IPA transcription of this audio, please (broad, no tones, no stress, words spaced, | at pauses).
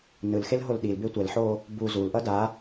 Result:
nɯlxelɦol ɗilbe tʷɛlħo | bu zulʔʌ da